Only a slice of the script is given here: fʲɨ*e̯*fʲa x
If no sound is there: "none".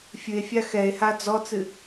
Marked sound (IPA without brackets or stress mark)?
e̯